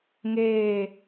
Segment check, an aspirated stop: absent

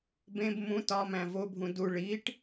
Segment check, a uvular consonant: absent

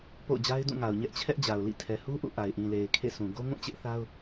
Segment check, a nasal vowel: present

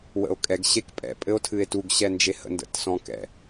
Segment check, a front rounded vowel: absent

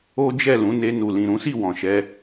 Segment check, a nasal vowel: present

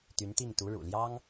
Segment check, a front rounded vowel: present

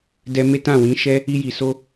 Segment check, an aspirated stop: absent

